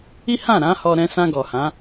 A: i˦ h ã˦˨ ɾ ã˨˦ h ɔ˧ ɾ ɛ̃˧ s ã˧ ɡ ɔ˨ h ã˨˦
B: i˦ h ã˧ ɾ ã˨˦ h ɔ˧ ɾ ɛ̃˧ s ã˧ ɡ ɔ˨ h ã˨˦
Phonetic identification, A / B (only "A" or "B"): A